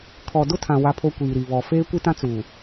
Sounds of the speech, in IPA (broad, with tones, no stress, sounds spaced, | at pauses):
kʰ ɔ˨ d ʊ˦ tʰ ã˨ w a˦ pʰ o˦ kʷ iː˨ ɾ i˨ β ɔ˨ f eː˦ kʷ i˦ t ã˦ t͡s uː˨